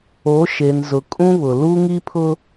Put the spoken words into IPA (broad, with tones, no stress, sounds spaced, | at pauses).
o˨˦ ʃ e˨ n z ʊ˨ kʼ ũ˦ β ʊ˨ l uː˦ ŋ iː˦ pʰ ʊ˦